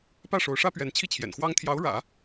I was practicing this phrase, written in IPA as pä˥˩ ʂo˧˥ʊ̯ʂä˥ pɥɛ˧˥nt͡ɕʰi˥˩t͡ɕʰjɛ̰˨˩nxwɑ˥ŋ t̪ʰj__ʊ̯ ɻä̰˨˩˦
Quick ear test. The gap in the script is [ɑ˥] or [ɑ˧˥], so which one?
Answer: ɑ˧˥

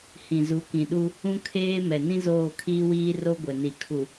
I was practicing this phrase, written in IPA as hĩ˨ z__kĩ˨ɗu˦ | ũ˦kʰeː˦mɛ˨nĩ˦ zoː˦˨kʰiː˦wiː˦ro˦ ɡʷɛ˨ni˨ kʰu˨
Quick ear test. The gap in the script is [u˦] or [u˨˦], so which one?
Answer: u˨˦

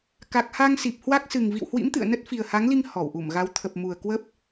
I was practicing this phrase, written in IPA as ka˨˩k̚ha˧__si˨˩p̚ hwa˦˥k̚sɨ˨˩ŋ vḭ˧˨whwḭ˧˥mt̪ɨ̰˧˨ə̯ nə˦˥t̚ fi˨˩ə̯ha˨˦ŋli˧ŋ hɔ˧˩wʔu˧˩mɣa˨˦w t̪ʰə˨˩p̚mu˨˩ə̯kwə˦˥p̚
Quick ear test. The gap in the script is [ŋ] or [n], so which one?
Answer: ŋ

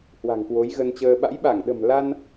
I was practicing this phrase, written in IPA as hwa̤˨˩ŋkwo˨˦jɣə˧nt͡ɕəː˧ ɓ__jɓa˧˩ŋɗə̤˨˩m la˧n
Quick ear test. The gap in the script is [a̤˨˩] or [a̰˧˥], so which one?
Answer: a̰˧˥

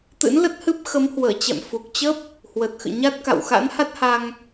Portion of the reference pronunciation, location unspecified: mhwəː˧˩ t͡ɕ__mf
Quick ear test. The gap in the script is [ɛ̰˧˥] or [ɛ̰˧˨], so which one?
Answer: ɛ̰˧˨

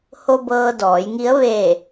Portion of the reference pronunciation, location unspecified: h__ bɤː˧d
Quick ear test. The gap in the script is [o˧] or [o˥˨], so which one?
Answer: o˧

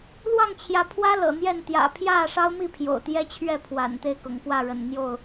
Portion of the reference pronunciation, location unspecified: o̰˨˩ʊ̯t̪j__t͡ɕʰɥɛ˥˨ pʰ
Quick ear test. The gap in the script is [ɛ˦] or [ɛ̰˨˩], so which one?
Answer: ɛ˦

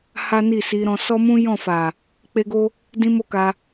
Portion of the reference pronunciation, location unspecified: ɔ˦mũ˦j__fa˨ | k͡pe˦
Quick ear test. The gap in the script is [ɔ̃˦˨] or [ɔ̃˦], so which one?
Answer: ɔ̃˦˨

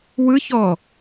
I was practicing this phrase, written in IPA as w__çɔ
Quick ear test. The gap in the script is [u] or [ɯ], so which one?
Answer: ɯ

